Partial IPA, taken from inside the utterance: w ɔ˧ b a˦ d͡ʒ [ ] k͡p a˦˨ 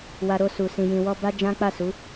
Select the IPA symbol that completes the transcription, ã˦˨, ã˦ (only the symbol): ã˦